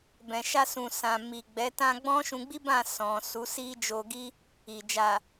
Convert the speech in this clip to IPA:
b ɛ̃˨ ʃ a˧ s ũ˨ s ã˨ m i˨ ɡ͡b ɛ˨˦ t ã˧ ɡ͡b ɔ̃˦ ʃ ũ˧ ɡ͡b i˦ b ã˦˨ s ɔ̃˨ s u˨˦ s i˦ d͡ʒ o˧ ɡ i˦ | i˨ d͡ʒ a˨

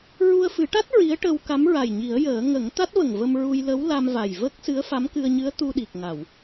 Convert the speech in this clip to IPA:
ɹ u˧ ə̯ f ɨ˨˩˦ ʈ a˦˥ t̚ ɹ i˧˥ ə̯ ʈ ə˧ w k a˧˥ m ɹ a˨˩ j ɲ i˨˩˦ ə̯ j əː˨˩˦ ŋ ə˨˩˦ ŋ t̪ a˦˥ t̚ v ə˨˩ ŋ v ə˧ m ɹ u˧ j l ə˧˥ w l a˧ m v a˨˩ j v ə˦˥ k̚ s ɨ˧˥ ə̯ f a˧˥ m k ɨ˧ ə̯ ɲ ɨ˧˥ ə̯ t̪ u˧ ɗ i˨˩ k̚ ŋ a˨˩˨ w

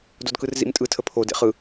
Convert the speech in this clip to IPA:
d o d k ɯ r z ḭ m tʼ ɯ tʰ ə pʰ o d ḛ χ ɯ

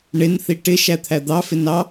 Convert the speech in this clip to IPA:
ɳ ɪ n θ i ʈ ɪ ʃ æ t̪ʰ æ d̪ ɑ f ɪ n ɑ

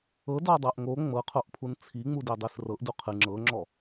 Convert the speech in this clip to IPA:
ɤ d ɔ dˤ ɤ ʔ ŋ o ŋ͡m ɤ qʰ o ʔ pʰ u n t͡sʰ i ŋ͡m u d e dˤ e s r ɤ ʔ d u qʰ ɨ ŋ͡ǁ ɤ ŋ͡ǁ ɔ

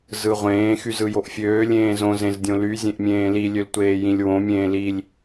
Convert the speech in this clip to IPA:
z ɯ ʁʷ ẽː x y z ɯ j o ʔ fʲ øː lʲ ẽː z õ z ẽ z dʲ õ l y zʲ ẽ ʔ mʲ ẽː l i lʲ ø l tʷ eː j ĩ lʲ w õ mʲ ẽː l i lʲ

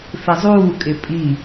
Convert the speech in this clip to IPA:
f ɪ zˤ uː kʼ ɪ pʼ i

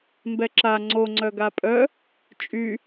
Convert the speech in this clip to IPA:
m b ɛ ǁ a ŋ͡ǀ o ŋ͡ǀ œ ɡ a pʼ œ | t͡ʃʼ y

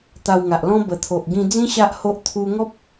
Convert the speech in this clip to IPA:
t̪ a˧ w ŋ a˨ ʔ l ɔ̃˦ b ə˨˩ t̪ʰ o˨ ʔ ɡ ĩ˧ d͡z ĩ˦ ɕ a˦ ʔ h o˦ ʔ t̪ʰ u˧ ŋ ɔ˦ p̚

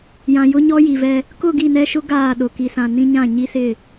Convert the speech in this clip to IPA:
j ã˨ j ʊ˦ ɲ ɔ˦ j i˨ v ɛ˦ | k ʊ˦˨ ɡ i˦˨ n ɛ˦ ʃ ʊ˦ ɡ aː˦˨ ɗ ʊ˨ k i˨ s ã˨ n ĩ˦ ɲ ã˦˨ ɲ i˦ s ɪ˦˨

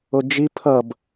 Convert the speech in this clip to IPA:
o d͡ʒ i pʰ ʌ b

